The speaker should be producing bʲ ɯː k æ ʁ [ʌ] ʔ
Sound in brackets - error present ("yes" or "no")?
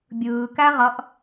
no